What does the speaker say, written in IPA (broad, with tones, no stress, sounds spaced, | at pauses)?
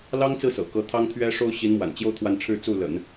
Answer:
l ɑ˥ ŋ t͡s ɹ̩˥˩ s ɤ̰˨˩ k ɤ˧˥ t̪ʰ ɑ˥ ŋ t̪ʰ ɥ ɛ˥ ʂ o˥ ʊ̯ ɕ i˧˥ n m w a̰˨˩ n t͡ɕ j o˥˧ ʊ̯ t̪ʰ w a˥˧ n ʈ͡ʂʰ ɻ̩˥˧ t͡s u˥˩ l ə̰˨˩˦ n